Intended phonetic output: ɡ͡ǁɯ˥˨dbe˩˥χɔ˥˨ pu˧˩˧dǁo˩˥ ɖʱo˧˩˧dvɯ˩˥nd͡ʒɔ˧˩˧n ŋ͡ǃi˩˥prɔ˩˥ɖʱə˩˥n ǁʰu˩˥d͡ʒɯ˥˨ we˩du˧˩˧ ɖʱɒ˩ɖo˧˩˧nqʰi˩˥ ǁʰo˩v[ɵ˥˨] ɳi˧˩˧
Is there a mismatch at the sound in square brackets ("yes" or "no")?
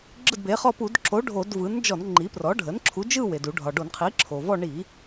yes